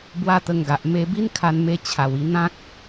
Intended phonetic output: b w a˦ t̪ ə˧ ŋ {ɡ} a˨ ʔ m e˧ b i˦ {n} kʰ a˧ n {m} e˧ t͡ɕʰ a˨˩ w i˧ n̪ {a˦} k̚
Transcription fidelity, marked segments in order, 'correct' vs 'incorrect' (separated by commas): correct, correct, correct, incorrect